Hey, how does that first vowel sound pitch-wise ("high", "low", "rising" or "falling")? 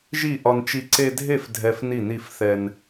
falling